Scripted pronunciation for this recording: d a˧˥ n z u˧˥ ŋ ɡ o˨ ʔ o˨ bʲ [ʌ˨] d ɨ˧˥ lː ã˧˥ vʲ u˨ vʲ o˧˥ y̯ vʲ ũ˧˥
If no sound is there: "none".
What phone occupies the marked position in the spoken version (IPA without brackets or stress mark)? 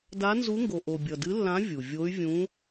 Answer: ʌ˨